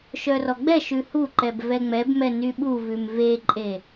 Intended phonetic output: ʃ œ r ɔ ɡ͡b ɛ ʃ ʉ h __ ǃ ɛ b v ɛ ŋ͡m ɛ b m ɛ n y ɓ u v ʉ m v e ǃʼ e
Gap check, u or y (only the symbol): u